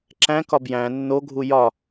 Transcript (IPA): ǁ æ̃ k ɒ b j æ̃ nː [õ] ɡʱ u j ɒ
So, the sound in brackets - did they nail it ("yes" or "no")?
no